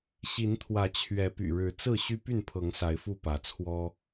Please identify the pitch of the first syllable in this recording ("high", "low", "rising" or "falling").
rising